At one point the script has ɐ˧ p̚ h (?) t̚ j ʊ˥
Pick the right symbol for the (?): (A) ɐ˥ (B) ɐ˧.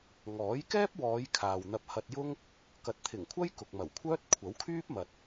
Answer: B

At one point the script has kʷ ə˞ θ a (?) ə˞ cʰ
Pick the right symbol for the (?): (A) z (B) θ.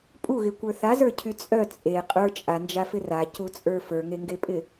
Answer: A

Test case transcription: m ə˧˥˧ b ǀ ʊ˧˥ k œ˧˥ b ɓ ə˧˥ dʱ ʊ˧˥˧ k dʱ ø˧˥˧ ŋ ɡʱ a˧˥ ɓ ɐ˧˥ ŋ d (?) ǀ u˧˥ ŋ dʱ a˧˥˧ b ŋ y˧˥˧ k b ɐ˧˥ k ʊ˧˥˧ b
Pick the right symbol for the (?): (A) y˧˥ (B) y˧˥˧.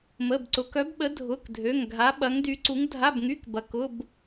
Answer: A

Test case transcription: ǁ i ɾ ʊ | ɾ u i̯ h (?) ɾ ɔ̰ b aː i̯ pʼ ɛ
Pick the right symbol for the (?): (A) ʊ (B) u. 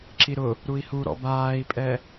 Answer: B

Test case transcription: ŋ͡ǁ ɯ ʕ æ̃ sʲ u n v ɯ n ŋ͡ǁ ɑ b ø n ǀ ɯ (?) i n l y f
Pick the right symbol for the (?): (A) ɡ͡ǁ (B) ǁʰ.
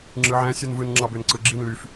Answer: A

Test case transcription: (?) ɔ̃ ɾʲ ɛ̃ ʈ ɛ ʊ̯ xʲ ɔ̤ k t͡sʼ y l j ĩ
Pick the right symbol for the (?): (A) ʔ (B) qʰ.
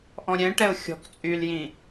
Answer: A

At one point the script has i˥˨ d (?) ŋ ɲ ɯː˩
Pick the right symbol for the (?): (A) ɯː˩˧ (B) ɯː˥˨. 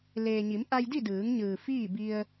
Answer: A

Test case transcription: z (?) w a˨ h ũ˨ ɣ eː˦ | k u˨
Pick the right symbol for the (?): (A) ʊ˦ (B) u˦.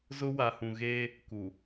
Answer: A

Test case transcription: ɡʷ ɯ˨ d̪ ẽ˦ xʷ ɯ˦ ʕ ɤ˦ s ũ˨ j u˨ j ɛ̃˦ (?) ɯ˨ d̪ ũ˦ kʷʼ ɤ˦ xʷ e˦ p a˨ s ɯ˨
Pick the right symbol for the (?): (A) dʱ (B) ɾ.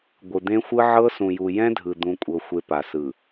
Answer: A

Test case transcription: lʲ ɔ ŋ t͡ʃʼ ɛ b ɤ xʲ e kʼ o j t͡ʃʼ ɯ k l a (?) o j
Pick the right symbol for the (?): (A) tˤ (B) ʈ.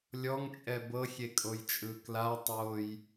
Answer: A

